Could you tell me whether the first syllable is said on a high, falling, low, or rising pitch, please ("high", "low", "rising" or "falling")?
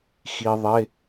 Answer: low